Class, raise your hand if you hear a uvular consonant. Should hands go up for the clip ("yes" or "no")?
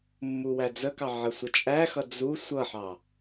no